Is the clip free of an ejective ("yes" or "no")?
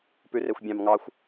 yes